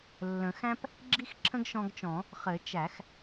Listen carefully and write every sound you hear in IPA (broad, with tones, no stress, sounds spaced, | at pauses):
lː ə̃˨˩˦ x æ̃˥ p | ɡ͡ǁ i˥ x ǁʰ ə̃˥ ɡ ʃ ɔ̃˧ ɡ t͡ʃ ɔ̃˨˩˦ | χ ɘ˨˩˦ t͡ʃ æ˨˩˦ x